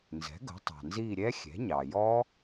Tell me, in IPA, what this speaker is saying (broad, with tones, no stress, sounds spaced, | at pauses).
n z ɛ̤˩˥ ɡ ə̤˩˥ tˤ ɑ̤˩ n z i˦˨ ɾʲ ɛ˦˥ xʲ ɛ̤˩˥ ɲ ɑ˩ j ɔ˦˥